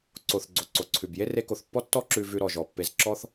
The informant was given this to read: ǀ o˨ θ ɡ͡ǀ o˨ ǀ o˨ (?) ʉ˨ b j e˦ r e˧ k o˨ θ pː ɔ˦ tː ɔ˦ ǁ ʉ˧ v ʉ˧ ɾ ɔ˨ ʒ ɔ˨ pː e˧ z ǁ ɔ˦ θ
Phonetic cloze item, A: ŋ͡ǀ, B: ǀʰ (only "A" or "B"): B